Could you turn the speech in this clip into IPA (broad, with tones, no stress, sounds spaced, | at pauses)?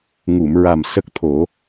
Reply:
ŋ u˨˩˨ m ɹ a˨˩ m s ə˦˥ k̚ t̪ʰ o˨˩˦